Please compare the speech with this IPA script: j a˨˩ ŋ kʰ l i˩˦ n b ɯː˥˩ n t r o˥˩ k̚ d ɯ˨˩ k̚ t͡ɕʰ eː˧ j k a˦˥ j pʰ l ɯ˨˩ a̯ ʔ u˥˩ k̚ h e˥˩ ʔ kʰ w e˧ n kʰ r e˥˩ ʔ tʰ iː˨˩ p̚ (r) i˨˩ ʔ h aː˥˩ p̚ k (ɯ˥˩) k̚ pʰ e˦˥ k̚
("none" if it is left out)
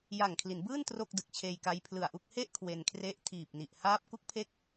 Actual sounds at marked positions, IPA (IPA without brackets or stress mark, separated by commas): n, u˥˩